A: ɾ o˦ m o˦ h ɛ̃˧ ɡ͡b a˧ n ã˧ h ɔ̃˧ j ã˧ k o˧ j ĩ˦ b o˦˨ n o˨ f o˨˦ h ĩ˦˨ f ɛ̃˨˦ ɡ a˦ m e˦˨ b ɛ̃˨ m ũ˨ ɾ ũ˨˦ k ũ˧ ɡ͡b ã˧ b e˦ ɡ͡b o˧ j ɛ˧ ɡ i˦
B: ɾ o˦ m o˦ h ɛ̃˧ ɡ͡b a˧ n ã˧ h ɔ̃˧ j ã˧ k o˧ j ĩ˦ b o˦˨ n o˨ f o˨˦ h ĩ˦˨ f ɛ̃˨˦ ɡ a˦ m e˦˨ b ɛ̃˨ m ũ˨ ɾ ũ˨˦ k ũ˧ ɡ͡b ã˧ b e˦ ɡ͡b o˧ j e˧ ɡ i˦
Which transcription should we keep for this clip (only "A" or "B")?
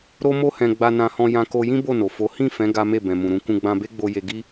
B